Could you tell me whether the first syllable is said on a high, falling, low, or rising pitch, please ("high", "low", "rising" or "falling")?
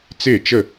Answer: falling